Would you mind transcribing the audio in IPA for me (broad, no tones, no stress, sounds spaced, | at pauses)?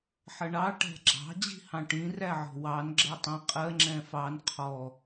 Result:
ħ ʌ ɳ ɑ ʈ æ̤ ɡ͡ǁ ɑ̤ d͡ʑ i̤ h ɑ̃ ʈ ĩ r æ ʕ ɔ̤ w ɑ n ɡ͡ǁ ɜ tˤ ĩ qʼ ɜ ŋ͡ǁ ɛ̃ f ɑ n qʰ ɔ